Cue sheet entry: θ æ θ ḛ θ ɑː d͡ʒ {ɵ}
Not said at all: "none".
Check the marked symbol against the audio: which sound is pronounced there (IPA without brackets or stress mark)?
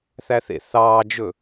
ɵ